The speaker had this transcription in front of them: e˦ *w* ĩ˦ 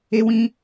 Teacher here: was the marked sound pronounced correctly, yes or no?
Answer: yes